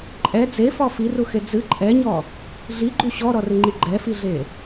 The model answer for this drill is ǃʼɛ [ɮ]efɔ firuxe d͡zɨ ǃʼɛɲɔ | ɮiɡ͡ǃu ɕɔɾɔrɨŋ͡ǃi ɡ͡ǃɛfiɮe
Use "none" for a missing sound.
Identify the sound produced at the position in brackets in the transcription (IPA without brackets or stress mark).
d͡z